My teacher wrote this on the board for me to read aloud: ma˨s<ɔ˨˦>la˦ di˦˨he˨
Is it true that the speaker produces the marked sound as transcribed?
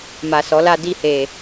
yes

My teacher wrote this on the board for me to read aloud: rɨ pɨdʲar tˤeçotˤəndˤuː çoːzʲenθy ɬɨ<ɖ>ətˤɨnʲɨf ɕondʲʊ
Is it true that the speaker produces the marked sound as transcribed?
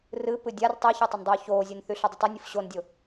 no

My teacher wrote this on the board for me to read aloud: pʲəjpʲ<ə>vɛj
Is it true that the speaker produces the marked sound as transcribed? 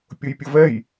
yes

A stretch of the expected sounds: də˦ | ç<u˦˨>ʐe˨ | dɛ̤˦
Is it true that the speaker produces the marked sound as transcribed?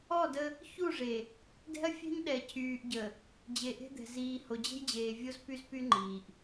yes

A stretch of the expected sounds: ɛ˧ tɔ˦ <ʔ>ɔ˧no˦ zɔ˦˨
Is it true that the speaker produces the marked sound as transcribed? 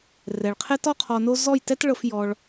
no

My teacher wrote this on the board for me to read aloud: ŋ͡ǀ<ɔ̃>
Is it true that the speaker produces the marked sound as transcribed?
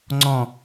yes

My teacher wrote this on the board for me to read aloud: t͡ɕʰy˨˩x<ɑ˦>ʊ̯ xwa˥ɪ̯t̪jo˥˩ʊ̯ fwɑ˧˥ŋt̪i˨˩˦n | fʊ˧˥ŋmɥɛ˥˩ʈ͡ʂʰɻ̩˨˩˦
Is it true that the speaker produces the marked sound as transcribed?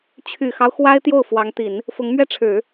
yes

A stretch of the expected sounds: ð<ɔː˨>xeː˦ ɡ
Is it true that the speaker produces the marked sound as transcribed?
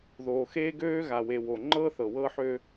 no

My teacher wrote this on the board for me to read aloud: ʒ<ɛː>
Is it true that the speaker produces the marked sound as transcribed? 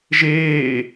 no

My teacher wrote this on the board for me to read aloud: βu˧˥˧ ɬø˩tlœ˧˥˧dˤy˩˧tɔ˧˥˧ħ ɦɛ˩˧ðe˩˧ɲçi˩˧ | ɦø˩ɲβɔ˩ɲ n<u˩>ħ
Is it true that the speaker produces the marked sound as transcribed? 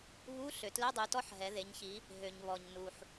yes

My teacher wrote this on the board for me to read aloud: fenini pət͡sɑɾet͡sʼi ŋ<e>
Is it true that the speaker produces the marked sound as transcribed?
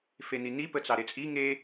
yes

